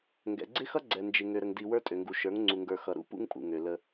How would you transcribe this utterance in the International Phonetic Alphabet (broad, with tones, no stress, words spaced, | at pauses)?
ŋɡɛ̰˨ɡ͡ǀɪ˦xʌ˦ ɡ͡ǀɛ˨nd͡ʒɪ˨ ŋø˨ɾə˨ŋ di˨ wə˞˦tʼø˨ŋɡu˨ ʃə˞˨˦ŋŋ͡ǀu˨ŋɡə˞˨ xʌ˨ɾṵ˦ pṵ˦ŋpʼṵ˨ ŋø˨lə˦